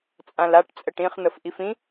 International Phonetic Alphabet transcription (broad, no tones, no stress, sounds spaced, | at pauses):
t͡sʼ ã l a ʈ t͡sʼ ə ʈ ĩ χ n̪ ə f ʔ i f ĩ